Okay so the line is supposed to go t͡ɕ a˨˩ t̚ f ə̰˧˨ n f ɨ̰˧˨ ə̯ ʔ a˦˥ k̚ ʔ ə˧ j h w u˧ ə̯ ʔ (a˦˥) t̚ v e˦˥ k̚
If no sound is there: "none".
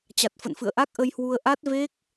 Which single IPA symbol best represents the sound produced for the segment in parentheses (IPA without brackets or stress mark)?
a˦˥